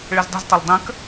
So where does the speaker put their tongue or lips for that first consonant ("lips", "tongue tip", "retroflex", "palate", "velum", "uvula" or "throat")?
retroflex